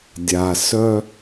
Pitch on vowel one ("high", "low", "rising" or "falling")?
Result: low